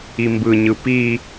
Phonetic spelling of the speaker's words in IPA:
i m b ɯ ɲ ɯ p i

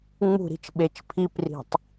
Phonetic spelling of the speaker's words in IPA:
ŋ͡m ṳ ɾ i̤ t͡ʃ ɓ e t͡ʃ pʰ i p r i̤ tˤ

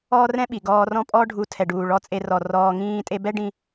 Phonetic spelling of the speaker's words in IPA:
ɔː˦ r ɛ̃˦ ɓ i˨ ɡ ɔː˧ r ɔ̃˦ pʼ ɔ˦ ɖʱ u˧ tʰ ɛ˨ ɖ uː˨ ɭ ɔ˧ t͡sʼ e˧ r ɔ˨ r ɔː˧ ŋ ĩː˦ tʼ e˦ b ɛ˦ ɖ ĩ˧

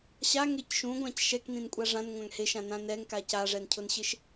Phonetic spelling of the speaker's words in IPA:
ɕ a ŋ e c ʃ ũ ɡʷ ã c ʃ ɛ k n ĩ n kʷʼ a ʐ ã n ŋʷ ã ŋ h e ʃ ã n ã n ɛ ŋ k a c a ʐ ɛ n cʰ ʊ n ɕ ɪ ʃ

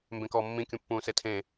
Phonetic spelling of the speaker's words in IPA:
m b ẽ k ɔː mː ĩ kʲ ũ pː ũː s e tʰ ẽ

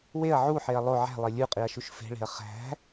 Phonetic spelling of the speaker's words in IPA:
w e ɐ̯ ʕ u ħ e ɐ̯ lˠ o ʕ æ̤ lˠ e lʲ u qʼ i ɐ̯ ʃ u ʃ f e̤ ɭ e̤ ɐ̯ χ æ̤

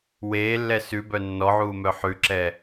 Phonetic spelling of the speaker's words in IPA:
w eː lː ɛ s ʉ b œ nː ɔ ʕ uː m œ ħ ʉ ǁ ɛ

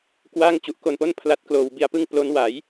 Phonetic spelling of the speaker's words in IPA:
k w a˥˩ ŋ t͡ɕ u˨˩ ʔ k o˧ n p o˥˩ n pʰ l a˦˥ t̚ k l oː˧ w b i˧ a̯ p ɯ˥˩ ŋ p l o˦˥ n w a˩˦ j

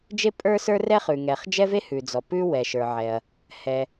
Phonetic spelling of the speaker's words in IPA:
d͡ʒ e˥ pʼ ə˞˥ s ə˞˥ r ɛ˥ χ ʉ˩ ŋ ɛ˩ χ d͡ʒ ɛ˥ v e˥ h ʉ˩ d͡z ɔ˩ p ʉ˥ w ɛ˩ ʃ ə˞˩ ʕ ɛ˩ ɐ̯ | h ɛ˩

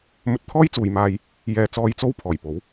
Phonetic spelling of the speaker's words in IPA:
m ɵ˧ t̚ t̪ʰ ɔː˥ j t͡s uː˨ j m aː˧ j | j ɛː˧ t͡s ɔː˧ j t͡s o˥ w pʰ ɔː˨˩ j p o˨˥ w

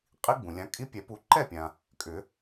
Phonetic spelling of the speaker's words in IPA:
qʼ i˦˥ ɡ͡b ũ˩ lʲ ã˨˦ kʼ i˦˥ pʲ ɛ˨˩˦ p u˨˦ ǃ ɛ˥˨ pʲ ã˩ | kʼ ʏ˨˩˦

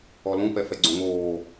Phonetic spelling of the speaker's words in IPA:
ɔ l ũ p ɛ f ɛ ɡ͡ǀ õ ŋ oː

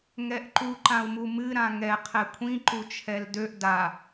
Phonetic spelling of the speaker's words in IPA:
ŋ ɛ ʔ ǃ u ǃ ã u̯ m u m ɨ ɾ ã ŋ ɛ qʰ ɛ kʷʰ ĩ ǃ u t͡ʃʰ ɛ l d ø ʔ d a

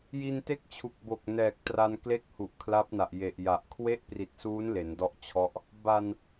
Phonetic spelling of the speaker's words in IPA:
j i˧ n t e˥˩ k̚ t͡ɕʰ u˨˩ k̚ b o˨˩ k̚ n ɛː˨˩ k̚ t r a˧ n k l e˥˩ k̚ h u˨˩ ʔ kʰ l a˦˥ p̚ n a˨˩ ʔ j e˨˩ ʔ j a˨˩ ʔ kʰ w e˦˥ ʔ p r i˨˩ t̚ s uː˦˥ n l e˩˦ n d ɔ˦˥ ʔ t͡ɕʰ ɔ˦˥ ʔ | b a˨˩ n

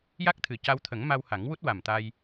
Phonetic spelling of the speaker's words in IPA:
j a˦˥ k̚ t̪ʰ ɨ˨˩ c a˧ w t̪ʰ ə˨˩˦ ŋ m a˧ w h a˨˩˦ ŋ w u˦˥ t̚ w a˨˩ m t̪ a˧ j

